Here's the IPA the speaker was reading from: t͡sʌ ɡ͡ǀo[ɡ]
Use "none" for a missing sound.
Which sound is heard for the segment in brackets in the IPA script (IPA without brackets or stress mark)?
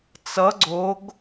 ɡ